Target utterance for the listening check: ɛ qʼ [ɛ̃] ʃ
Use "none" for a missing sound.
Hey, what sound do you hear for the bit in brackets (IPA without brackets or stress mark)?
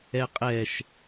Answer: ɛ